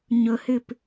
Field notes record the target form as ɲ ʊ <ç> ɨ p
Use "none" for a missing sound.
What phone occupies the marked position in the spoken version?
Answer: h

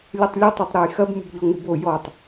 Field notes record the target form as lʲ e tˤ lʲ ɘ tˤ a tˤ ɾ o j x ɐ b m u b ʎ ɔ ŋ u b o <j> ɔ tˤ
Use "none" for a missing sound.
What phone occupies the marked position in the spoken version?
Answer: j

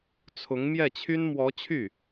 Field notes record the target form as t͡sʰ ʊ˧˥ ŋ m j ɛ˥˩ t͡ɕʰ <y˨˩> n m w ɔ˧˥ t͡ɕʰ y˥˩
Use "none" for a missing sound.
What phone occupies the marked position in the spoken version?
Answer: y˥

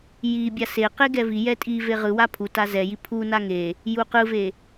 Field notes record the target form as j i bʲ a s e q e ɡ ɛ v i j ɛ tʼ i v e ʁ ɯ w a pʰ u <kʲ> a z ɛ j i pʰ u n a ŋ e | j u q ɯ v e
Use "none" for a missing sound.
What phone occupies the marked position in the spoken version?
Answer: t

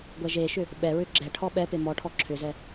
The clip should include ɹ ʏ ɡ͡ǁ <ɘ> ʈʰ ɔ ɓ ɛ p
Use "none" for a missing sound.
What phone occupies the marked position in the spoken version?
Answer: ɛ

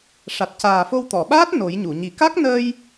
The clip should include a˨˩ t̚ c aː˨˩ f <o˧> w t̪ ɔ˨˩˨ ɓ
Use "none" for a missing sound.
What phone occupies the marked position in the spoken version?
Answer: o˧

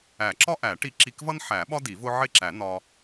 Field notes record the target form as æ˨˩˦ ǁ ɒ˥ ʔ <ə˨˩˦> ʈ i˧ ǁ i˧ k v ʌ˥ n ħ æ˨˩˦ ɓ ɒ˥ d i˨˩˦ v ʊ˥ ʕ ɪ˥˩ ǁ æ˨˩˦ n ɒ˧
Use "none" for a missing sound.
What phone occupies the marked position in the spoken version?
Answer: æ˨˩˦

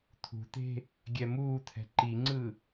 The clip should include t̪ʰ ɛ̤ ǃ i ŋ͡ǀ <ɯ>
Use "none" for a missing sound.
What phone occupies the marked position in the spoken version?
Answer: ɯ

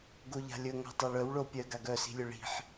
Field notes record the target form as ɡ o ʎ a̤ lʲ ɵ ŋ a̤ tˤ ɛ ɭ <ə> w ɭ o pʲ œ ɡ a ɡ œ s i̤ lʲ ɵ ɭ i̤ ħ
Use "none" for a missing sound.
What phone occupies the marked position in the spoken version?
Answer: œ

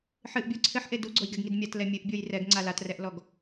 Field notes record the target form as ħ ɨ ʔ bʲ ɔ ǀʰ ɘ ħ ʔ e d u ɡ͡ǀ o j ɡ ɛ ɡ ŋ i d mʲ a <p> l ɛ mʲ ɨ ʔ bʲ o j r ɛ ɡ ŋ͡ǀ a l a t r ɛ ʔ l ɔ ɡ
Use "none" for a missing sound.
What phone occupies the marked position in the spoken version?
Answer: t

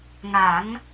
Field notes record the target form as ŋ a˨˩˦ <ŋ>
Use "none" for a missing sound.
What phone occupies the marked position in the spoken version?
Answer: ŋ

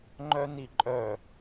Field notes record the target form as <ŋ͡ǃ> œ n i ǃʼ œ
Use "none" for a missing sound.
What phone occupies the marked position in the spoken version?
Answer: ŋ͡ǃ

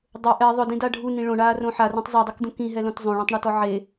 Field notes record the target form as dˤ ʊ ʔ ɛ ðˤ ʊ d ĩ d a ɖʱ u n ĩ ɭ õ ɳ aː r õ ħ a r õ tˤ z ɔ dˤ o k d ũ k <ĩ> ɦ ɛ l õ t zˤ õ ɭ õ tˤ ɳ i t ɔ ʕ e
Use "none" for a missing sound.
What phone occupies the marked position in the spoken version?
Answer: ĩ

